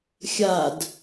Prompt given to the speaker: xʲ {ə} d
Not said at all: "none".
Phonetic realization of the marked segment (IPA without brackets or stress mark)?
a